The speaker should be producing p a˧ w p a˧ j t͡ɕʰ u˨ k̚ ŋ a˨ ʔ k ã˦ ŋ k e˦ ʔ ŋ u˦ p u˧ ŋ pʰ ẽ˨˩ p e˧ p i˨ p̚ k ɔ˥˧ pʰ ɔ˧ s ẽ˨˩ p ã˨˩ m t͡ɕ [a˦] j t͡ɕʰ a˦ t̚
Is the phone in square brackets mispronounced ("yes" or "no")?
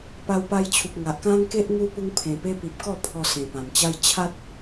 no